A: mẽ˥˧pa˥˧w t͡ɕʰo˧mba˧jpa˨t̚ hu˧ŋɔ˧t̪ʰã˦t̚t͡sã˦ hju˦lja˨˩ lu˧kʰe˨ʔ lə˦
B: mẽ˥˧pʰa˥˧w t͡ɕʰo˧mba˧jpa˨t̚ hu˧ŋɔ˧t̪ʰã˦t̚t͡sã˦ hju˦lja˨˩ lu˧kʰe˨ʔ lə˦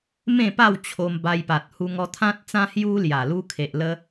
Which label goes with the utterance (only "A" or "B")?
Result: A